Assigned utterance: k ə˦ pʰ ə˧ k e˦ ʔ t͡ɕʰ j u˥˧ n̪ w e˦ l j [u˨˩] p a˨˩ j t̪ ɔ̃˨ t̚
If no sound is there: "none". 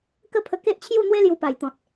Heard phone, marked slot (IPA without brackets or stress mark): u˧